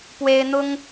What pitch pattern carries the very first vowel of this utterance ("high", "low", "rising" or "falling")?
high